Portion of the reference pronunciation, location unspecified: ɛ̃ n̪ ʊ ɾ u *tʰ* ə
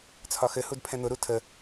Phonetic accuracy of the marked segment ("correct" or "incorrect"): correct